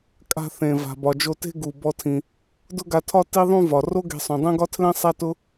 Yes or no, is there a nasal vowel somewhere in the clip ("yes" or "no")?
yes